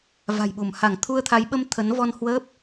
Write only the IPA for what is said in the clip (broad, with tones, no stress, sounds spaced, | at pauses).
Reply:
v a̤˨˩ j ɓ u˧˩ m h a˧˩ ŋ t̪ʰ u˧ ə̯ t̪ʰ a˨˦ j ɓ ə˧ m t̪ʰ ə˨˦ n v ɔ˧ n h w əː˦˥ p̚